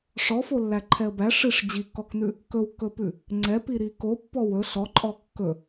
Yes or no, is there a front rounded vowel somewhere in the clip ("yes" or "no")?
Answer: no